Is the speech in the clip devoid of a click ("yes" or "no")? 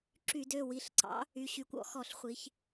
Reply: no